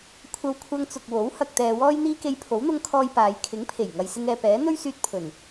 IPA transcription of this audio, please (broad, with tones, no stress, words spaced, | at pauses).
kʷʰɐ˧wkʷʰɐ˧ŋt͡sʊ˨k̚wo˨˥w hɐ˧k̚t̪ɛː˧wɔː˥jn̪iː˥ ke˧jpʰo˨˥wn̪ʊ˧ŋkʰɔː˧j paː˨˧j kʰɪ˨˥ŋpʰe˨˩j ŋɐ˨jsɪ˧ŋɛː˨pɛː˨˥ n̪ɵ˥ɥsyː˧t̚pʰɵ˨˩n